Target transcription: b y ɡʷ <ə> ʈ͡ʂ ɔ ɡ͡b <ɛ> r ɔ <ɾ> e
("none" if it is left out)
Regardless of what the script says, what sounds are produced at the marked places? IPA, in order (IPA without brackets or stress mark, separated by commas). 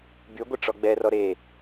ə, ɛ, ɾ